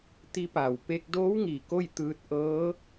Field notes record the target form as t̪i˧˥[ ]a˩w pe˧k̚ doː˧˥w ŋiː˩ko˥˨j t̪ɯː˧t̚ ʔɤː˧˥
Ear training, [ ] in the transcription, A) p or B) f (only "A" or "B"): A